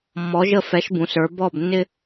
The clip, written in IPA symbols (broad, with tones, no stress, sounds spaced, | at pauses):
mː ɔ˩˧ ʒ ə˧˩ f ɛ˩˧ ʃ b ũ˩˧ s ə˞˩˧ b ɔː˧˩ b nː ɪ˧